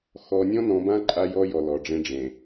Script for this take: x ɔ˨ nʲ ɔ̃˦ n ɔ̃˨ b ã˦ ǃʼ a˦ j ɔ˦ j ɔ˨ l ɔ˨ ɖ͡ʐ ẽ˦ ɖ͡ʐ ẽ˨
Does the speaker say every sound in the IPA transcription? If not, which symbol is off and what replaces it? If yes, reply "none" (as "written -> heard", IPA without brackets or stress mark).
none